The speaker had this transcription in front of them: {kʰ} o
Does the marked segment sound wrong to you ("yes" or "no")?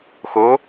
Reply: yes